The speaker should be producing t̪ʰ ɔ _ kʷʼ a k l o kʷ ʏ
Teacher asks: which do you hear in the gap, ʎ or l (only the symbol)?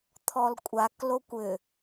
l